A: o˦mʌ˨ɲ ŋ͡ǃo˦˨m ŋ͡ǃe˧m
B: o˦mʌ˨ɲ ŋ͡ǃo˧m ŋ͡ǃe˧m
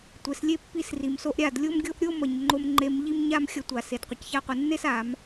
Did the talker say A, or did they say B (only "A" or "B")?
B